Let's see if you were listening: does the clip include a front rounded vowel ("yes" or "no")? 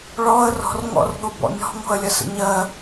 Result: no